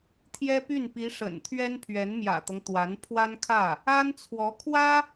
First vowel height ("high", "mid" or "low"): mid